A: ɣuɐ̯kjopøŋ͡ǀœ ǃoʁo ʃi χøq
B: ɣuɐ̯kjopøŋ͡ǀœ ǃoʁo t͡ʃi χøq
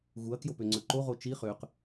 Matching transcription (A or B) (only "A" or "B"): B